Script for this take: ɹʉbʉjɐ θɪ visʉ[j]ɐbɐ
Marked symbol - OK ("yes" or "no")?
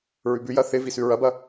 no